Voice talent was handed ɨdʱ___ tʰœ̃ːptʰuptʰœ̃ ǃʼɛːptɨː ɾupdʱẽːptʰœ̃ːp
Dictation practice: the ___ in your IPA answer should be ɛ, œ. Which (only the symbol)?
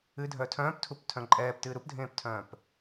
œ